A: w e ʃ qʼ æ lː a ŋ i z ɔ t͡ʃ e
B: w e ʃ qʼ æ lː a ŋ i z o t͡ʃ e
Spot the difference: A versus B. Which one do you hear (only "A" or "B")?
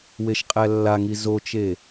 B